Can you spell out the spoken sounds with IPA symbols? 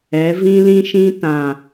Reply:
ɛ˨˦ v ĩ˦ l ĩ˦ ʃ ĩ˦ t ã˨

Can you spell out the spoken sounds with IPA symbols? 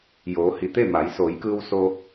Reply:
j oː˩˧ h i˩ t̪ e˥˨ m a˩˧ j s oː˩˧ j k ɯː˧ w s o˧

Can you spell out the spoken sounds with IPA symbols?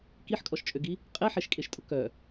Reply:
k i ħ kʼ ɔ ʃ t͡ʃʼ ø ɡ i | qʼ e ħ e ʃ kʼ e ʃ tʼ ʊ k œ

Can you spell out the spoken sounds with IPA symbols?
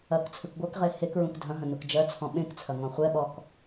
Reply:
ɐ k t͡sʰ ɯ k ɡʷ ɜ k ʁ e h e k ɹ ũ k dʱ ɐ̃ ɦ ɐ̃ n u k d͡ʒ ɜ t͡sʰ ɔ̃ ɓ ẽ k t͡sʰ ɐ ŋ ɔ̃ χʷ ɛ ɓ ɔ k

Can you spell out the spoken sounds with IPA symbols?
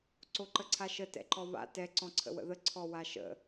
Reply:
ǀ o ǃ ə ǀʰ a ʃ ə t ɛ̰ ǃ ɔ β a̰ t ɛ ǀ ɔ̃ ǀʰ ə̰ w ə̰ ð ə ǀʰ ɔ w a ʃ ə̰

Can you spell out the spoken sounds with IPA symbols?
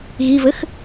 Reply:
ɣ i v ɘ x

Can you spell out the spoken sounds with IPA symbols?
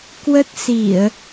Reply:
k w ə˦˥ t̚ s i˧˩˨ ə̯

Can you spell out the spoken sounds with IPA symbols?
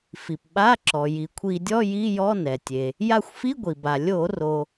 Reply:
f i˩ p ɓ a˧˥˧ ǁ ɔ˩ j i˩ kʷʰ i˧˩˧ dʲ ɔ˧˥˧ j i˧˥˧ j ɔ˧˥˧ n ɛ˩ tʲ e˩ | j a˦˨ xʷ f i˧˥˧ ɡʷ i˩ b a˩ lʲ o˧˩˧ r o˩

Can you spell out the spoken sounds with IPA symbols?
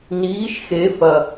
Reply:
n iː ʃ x e f ɐ

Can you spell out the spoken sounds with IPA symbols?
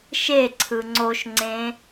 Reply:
ʃ e ǀʰ ɯ ŋ͡ǀ o ʃ ŋ͡ǀ ẽ

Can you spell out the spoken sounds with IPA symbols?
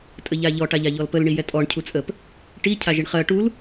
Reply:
tʼ ə ʎ a ʎ ɔ ʈ a ʎ a ʎ ɔ l p ə l ɳ i j ɛ tʼ ɔ ɳ cʰ u t͡sʼ ə p | ʈ i cʰ a ʒ i ɳ χ ɜ ʈ u l

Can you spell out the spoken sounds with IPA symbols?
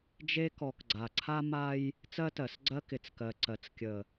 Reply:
d͡ʒ e˦ k ɔ˨ k ɡ͡ǀ a˨ ǀʰ a˦ m a˦ j | t͡s ɜ˦ t ɜ˨ s ɡ͡ǀ ɜ˦ k ɪ˨ t͡s k ɜ˨ ǀ ɜ˨ t͡s kʲ ə˨

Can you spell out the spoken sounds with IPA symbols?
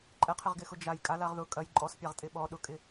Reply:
ǃʼ ɛ qʰ ɪ ʁ ɡ ɪ x ʊ d͡ʒ a j kʼ a l a ʁ ð ʊ kʼ ɐ j ǃʼ ɔ s pʲ a ʁ tʼ ɪ ɓ ɔ ɗ ʊ kʼ ɪ

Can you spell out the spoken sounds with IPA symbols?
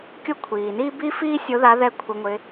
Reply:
kʲ o˦ kʷʰ iː˩ n iː˦ b i˦ f iː˦ sʲ o˨˦ ð a˨˦ ð ɛ˥˩ kʷʰ ɪ˨˦ ŋʷ ɪ˨˦

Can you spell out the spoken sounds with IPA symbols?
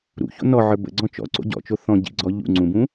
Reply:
ɾ ṵ ç o̰ n ɔ ʕ ə˞ b ə̰ ɡ͡ǀ ɔ̃ t͡ʃ ɔ̰ ǀ o̰ ɟ ɔ̰ t͡ʃ o θ ɔ̃ ɟ ḭ ɡ͡ǀ ɔ ʎ ṵ ŋ͡ǀ ũ b ũ

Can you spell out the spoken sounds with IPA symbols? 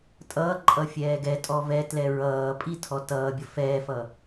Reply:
tʼ ʌː ǃʼ ʌ fʲ ɛː ɡ ɛ tʼ ɔ v ɛ t l ɛ ɹ ʌː pʼ i tʰ ɔ t ʌː bʲ ʌ f ɛː f ʌ

